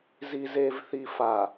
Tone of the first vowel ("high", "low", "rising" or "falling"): low